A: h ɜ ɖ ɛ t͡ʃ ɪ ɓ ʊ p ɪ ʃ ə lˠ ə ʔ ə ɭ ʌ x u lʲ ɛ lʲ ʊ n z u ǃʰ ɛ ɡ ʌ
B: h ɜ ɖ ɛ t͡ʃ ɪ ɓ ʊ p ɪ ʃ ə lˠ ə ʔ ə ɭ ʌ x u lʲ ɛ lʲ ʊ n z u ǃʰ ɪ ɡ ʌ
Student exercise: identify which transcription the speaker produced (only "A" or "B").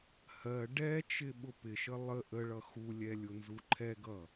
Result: A